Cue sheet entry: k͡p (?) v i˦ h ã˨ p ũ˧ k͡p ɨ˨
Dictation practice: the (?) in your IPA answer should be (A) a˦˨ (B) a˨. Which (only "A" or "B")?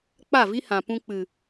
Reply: A